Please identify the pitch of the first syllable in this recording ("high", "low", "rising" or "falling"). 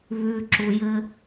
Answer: low